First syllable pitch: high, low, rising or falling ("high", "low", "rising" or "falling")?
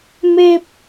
low